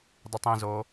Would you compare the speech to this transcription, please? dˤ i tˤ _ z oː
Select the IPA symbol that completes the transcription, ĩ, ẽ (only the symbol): ĩ